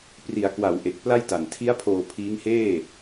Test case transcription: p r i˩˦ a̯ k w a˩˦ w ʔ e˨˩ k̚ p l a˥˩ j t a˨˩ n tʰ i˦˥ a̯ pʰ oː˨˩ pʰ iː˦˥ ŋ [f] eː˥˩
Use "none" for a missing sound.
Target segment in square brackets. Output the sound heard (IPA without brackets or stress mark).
h